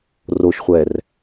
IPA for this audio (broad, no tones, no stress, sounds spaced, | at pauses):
r o ʃ χʷ ɛː r